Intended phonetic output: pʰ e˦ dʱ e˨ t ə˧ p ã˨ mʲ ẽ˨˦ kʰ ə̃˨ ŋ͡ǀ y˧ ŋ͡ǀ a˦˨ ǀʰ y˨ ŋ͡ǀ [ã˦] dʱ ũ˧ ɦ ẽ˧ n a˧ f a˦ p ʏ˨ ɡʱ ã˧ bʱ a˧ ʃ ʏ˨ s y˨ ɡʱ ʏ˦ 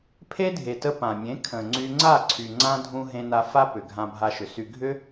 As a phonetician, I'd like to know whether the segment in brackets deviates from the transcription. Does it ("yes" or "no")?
no